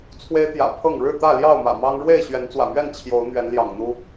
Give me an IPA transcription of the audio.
t͡sʰwe˦ɪ̯t̪jä̰˨˩ pʰɤ˥˨ŋ ɻɻ̩˥˨t̪ä˥˨ljɑ˥˨ʊ̯mä̰˨˩ mɑ˦ŋ ɻwe˥˨ɪ̯ ɕɥɛ˨˦nt͡swä̰˨˩mɥɛ˥˨n t͡ɕʰjo˨˦ʊ̯ n̪ɥɛ˨˦nljɑ̰˨˩ŋn̪u˦

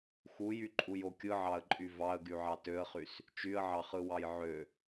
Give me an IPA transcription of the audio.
xujyǃʼujo kʲɯʕɑə̯ǃʼy vɑə̯ɡyʕɑ tøə̯χys | t͡ʃyə̯ʕɑχɯwɑj ʕø

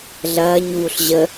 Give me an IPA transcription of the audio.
ɮɐːɲvuɬ ʑə

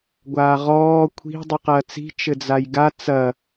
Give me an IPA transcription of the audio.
ɡʷaːʁɔː kʷʰi̤ dˤɨqɐːt͡si̤ t͡ʃɘd͡zajɡa t͡sɐ

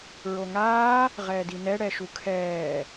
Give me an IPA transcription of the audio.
ɹoŋaː | ʁɛːdinɛ ɽɛʃukʰɛː

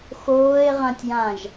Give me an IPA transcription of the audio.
xoːe̯ʁãtʲjãʒ

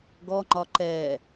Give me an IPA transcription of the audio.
ɡɔŋ͡ǃɒ ǃɛ

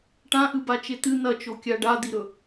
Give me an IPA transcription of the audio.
ʈãʔɨbat͡ʃe t̪ɨ n̪ɐt͡ʃokʲa ɖad̪iɾɵ

